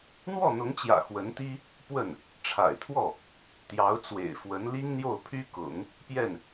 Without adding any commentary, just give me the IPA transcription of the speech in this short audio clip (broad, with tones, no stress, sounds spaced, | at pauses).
n̪ w ɔ˥˩ n̪ ʊ˧˥ ŋ t͡ɕ j ä̰˨˩ x w ə˧˥ n t̪ i˥ | p w ə˥˩ n | ʈ͡ʂʰ a̰˨˩ ɪ̯ t̪ʰ w ɔ˥˩ | t̪ j ɑ˧˥ ʊ̯ t͡s w ḛ˨˩ ɪ̯ f w ə˧˥ n l i˥ ŋ n̪ j o˥˩ ʊ̯ pʰ y˥ k ʊ̰˨˩˦ ŋ | p j ɛ˥˩ n